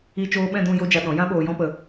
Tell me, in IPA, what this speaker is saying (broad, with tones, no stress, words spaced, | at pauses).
i˧t͡ʃoː˧ɓɛ̃˦˨dũ˦˨ jo˦d͡ʒa˧ɗɔ̃˨˦ jã˦ɓoː˧jɔ̃˦pə˧